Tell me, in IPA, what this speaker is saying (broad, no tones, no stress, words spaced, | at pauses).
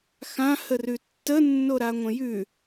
xãhərʉ tːənːoɾaŋʷə̃ jʉ